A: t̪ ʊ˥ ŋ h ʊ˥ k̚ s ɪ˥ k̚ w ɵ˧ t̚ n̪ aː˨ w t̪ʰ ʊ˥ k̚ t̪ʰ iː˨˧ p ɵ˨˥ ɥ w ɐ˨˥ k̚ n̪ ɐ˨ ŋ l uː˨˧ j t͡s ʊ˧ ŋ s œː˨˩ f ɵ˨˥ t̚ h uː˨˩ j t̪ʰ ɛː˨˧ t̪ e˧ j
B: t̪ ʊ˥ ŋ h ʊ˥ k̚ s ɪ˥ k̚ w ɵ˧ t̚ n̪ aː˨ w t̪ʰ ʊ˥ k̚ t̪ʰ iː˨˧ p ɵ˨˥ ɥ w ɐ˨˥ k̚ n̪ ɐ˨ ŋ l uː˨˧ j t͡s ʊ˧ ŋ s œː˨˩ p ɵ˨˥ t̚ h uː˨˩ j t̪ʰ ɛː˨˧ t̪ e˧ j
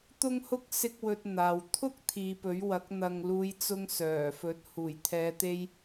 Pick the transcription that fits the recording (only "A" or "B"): A